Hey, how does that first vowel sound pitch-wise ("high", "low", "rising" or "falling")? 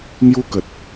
high